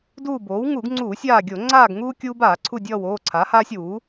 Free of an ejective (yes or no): yes